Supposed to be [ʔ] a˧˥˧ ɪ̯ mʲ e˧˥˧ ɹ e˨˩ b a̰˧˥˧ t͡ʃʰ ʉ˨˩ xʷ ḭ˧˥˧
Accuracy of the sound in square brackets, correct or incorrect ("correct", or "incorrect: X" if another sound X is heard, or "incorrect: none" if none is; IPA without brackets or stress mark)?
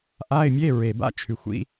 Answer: correct